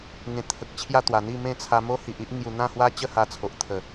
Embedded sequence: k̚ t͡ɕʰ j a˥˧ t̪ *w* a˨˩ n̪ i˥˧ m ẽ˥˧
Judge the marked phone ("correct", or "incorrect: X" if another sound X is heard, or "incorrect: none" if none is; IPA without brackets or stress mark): correct